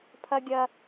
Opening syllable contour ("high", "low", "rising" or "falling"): high